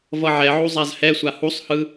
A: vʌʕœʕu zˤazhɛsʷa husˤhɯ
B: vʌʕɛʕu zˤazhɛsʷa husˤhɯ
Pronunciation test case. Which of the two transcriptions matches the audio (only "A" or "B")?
B